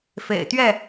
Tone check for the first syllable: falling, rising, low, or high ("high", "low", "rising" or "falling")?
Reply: low